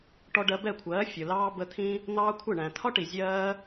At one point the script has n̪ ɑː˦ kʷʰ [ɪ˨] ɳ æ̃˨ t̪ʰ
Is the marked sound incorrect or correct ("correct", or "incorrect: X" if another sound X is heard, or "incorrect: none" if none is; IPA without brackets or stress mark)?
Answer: incorrect: ɪ˦˨